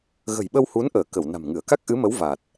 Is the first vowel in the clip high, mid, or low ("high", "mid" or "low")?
mid